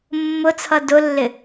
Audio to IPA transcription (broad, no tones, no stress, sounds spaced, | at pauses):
mː ʊ t͡sʰ ʌ d ʊ lː ɪ